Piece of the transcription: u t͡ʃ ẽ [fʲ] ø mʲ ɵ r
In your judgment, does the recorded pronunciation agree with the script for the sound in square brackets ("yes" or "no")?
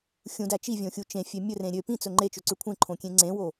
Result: yes